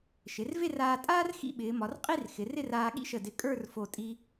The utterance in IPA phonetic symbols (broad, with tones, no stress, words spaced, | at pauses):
ʃɪ˩˧rve˥˧raː˧tʼaː˥r xḭ˥˧ɓɪː˩˧mɒ˩˧rqʼi˥˧r xɪ˩˧rɪ˥˧raː˧ ɠḭ˥ʃə˧˩dɪ˧˩ kʼə˞˥˧rfo˧˩ tʼi˧